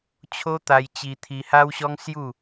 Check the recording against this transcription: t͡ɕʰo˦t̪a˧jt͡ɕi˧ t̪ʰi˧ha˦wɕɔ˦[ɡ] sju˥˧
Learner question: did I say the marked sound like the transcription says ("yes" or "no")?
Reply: no